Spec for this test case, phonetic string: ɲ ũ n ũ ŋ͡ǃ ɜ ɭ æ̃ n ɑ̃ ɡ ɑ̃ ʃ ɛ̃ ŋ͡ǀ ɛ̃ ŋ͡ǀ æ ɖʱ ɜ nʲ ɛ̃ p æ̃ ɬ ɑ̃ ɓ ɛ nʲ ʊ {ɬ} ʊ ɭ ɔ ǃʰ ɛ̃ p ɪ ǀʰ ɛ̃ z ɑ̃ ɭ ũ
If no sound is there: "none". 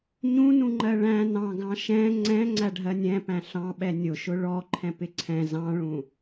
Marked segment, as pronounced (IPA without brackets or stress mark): ʃ